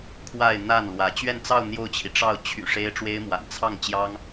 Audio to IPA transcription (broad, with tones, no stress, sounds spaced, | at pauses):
kʰ w a˥˧ ɪ̯ n̪ a˥˩ n l w ä˧˥ t͡ɕ ɥ ɛ˥˧ n t͡s ɑ˥˧ ʊ̯ n̪ j o˥˩ ʊ̯ t͡ɕʰ i˩ ʈ͡ʂ ɑ˥˩ ʊ̯ t͡ɕʰ y̰˨˩ ʂ e˥ ɪ̯ ʈ͡ʂ w e˥ ɪ̯ m w a̰˨˩ n t͡sʰ ɑ˥˩ ŋ t͡ɕ j ɑ˥ ŋ